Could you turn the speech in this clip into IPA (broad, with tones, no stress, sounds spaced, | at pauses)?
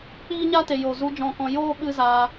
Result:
k͡p iː˦ ɲ a˦ t e˨ j o˨ z u˧ d͡ʒ ɔ̃˦˨ k ɔ̃˦ j oː˦ ɓ ɨ˦ z aː˧